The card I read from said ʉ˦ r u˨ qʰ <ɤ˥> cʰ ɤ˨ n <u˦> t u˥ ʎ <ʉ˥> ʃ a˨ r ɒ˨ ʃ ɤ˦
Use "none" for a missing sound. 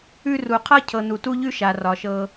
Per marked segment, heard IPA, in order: ɤ˦, u˨, ʉ˥

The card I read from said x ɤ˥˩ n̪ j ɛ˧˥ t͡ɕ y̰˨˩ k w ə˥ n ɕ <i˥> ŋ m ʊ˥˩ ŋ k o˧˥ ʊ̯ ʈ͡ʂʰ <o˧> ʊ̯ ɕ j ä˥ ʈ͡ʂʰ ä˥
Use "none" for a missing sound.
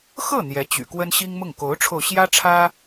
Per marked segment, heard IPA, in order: i˥, o˧

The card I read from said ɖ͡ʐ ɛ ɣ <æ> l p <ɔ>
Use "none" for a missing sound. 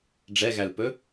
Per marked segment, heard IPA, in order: æ, ɵ

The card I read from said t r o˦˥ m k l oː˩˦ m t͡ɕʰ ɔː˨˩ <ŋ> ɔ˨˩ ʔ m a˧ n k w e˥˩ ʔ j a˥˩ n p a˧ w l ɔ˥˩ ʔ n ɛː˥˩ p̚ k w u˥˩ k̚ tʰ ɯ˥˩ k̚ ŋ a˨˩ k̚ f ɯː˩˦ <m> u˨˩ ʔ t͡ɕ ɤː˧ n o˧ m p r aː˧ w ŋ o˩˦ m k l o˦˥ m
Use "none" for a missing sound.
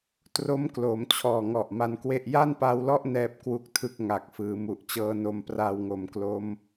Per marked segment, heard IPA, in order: ŋ, m

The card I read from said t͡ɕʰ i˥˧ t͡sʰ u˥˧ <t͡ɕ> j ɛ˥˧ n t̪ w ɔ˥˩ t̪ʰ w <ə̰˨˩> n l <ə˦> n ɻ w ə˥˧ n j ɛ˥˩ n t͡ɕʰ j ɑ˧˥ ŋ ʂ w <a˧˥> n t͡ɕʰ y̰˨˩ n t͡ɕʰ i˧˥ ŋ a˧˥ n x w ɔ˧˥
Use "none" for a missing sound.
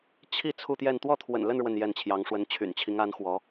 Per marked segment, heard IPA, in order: t̪, ə̰˨˩, ə˥˧, ə˧˥

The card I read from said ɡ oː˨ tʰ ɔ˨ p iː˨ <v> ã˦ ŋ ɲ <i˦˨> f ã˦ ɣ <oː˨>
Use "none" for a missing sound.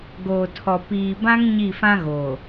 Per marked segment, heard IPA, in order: b, i˦˨, oː˨

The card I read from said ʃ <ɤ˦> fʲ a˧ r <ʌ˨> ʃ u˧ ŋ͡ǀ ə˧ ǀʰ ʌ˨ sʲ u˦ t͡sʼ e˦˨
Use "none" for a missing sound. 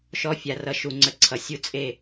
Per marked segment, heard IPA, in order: ɔ˦, ʌ˧

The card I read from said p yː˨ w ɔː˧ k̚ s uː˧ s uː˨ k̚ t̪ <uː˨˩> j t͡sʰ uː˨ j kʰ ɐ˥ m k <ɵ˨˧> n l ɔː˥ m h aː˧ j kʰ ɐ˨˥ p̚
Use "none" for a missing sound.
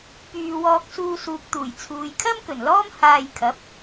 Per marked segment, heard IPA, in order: uː˨˩, ɵ˨˩

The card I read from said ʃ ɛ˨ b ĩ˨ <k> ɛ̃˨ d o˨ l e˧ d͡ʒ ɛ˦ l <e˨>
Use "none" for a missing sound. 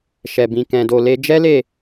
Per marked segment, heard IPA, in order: k, e˦˨

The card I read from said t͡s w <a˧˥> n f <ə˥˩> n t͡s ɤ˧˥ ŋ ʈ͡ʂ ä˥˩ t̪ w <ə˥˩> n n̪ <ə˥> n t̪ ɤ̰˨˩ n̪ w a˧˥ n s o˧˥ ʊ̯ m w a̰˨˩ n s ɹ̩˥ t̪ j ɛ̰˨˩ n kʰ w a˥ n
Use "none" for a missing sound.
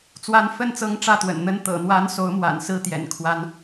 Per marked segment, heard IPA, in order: a˧˥, ə˥˩, ə̰˨˩, ə˥

